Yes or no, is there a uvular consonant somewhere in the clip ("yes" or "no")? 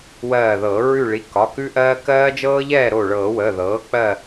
no